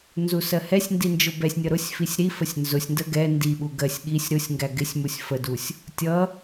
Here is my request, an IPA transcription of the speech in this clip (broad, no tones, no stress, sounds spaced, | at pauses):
n z u s ɜ h ɛ sʲ n d i n d͡ʒ ʊ b ɛ sʲ nʲ ʌ ɾ ʊ sʲ f i sʲ ɾ i f ə sʲ n z ʊ sʲ n d ə ɡ ɛ n d i ɓ u ɡ ɜ sʲ ɠ i sʲ ɾ ʊ sʲ ŋ ɡ æ ɡ ɪ sʲ m u sʲ f ə d u sʲ | tʲ ʌ